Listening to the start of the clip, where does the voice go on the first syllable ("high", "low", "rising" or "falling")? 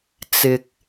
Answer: low